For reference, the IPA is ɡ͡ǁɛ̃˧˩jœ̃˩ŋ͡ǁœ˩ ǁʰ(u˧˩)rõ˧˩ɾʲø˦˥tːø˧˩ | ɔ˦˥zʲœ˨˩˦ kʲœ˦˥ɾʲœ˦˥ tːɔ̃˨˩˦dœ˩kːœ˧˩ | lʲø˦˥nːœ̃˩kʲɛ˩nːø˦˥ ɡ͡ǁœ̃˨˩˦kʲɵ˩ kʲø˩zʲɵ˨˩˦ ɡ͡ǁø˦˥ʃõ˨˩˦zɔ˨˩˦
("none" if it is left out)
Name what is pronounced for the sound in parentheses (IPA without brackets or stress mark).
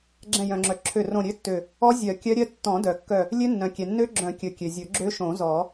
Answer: ø˧˩